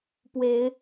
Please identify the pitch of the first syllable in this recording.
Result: rising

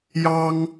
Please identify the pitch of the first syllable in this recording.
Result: high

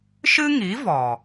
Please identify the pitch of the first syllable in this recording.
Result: high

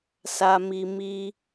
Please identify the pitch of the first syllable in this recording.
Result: low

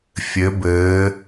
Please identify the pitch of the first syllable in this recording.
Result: rising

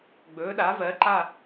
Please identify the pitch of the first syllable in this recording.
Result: rising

